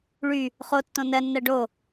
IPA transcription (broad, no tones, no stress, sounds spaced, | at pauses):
ɭ y | χ o tː õ n ɜ nː ɜ ɖ o